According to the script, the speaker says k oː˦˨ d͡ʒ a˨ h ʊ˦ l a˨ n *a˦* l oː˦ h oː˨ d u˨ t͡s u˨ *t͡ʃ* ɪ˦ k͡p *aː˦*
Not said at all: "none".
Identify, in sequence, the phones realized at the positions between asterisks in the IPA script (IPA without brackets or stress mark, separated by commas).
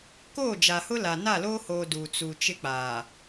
a˦˨, t͡ʃ, aː˨